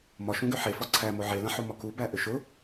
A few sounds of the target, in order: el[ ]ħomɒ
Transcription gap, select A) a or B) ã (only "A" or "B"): B